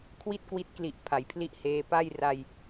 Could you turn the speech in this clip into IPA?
kʰwi˥˩t̚kwi˦˥t̚kli˨˩ʔ pʰa˩˦jpʰli˦˥ʔheː˧ pa˥˩jra˧j

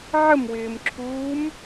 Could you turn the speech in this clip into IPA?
ʕəmwɪːmǁʰuːm

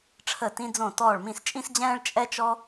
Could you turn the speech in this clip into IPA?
ʈ͡ʂʰə˥˩tĩ˥d͡zõ˥˩ tɔː˥˩ɭ mĩ˥˩st͡ʃʼĩ˥sd͡ʑɛ̃ː˥ɭ t͡ʃʼɛ˥t͡ʃɔ˥

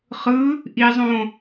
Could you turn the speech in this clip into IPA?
χɯ | ʔizˤõ

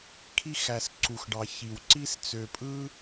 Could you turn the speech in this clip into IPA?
kʰi˧xæ˨s ǀu˨xɖɑ˨ çi˨wǀi˦s t͡sø˨pʼɯ˧

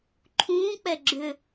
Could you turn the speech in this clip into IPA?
ǃʰũːk͡pɛ ɡ͡ǁʏ

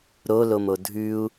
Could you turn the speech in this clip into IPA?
ɾolomo dʱʉu̯

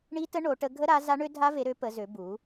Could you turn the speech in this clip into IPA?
ɳi˦˥tə˦˥ ɳo˨˥ʈə˦˥ ɡʱə˦˥ɾa˨˥ za˦˥ɳø˦˥dʱa˦˥ve˨˥ ɾø˨˥ pə˨˥zø˨˥ bu˨˥

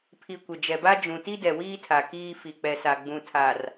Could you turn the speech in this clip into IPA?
pʰi˨kʷɪ˨d͡ʒɛ˨ba˦ d͡ʒũ˨ ti˦dɛ˨wiː˦tʰa˨ kiː˦ fi˨k͡pɛ˨sa˨ ɡ͡bũ˨tʰa˨r

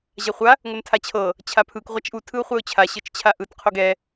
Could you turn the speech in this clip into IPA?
ʑaχʷa | ŋʷɯntʰat͡ɕʰɤ | t͡ɕʰapʰɯk ʁʷat͡ʃʔu tʰɯʊ̯χʷɛʊ̯t͡ɕʰa ɕɤt͡ʃt͡ɕʰaʔɯt qʰoɡɛ

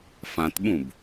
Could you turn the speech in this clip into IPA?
fãtɓũb

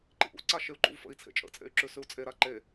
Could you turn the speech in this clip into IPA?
ǃḭʔṵ ǀaʃeu̯ǃṵvfə̰i̯ t͡sʰḛt͡ʃʼə̰t͡sʼḛy̯ǁʉ sʉu̯t͡sʼe ɾaǃe

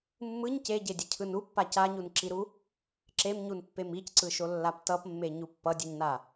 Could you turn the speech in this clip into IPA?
mːɯɲ ceɟedʲʌcʰɯn upːa caɲunǁiɾu | ǁemɲunpːem icǀɯʃolːap tʌpmːeɲu pːʌdʲuɲna

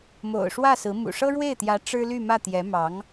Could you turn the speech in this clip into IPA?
mo̰˨˩ʊ̯ʂwä˥˩ sɹ̩˧˥ mṵ˨˩ʂɤ˥ ɻwe˥˩ɪ̯t̪jä˧˥ ʈ͡ʂɻ̩˥ly˥˧mä˥˩ t̪jɛ˧˥mɑ˧˥ŋ

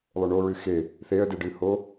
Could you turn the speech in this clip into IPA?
lˠɵɳo ɹɨxe | θeə̯deɖɨho

